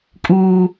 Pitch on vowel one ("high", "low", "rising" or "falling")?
high